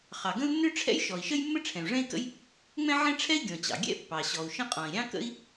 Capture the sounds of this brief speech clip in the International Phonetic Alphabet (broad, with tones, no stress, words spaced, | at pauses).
χɑ˩ɡə̃˥u̯ nːø˥ʈ͡ʂʰɛ̰˥j ʃɔ˩i̯ʃə˥jmːə˥ ʈ͡ʂʰɛ̃˩u̯ʐɛ̃˥i̯kə̰˥j | ŋ͡mɛ̃˥ʕɛ̃˥ ʈ͡ʂʰɛ˥i̯ ɡʲɔ̃˩t͡ɕɑ̰˩ ɡʲɛ̰˥ pːɑ˩ɕɔ˩u̯ʃə̃˥ qʼɔ̃˩i̯ɾʲɑ̃˥kə̰˥i̯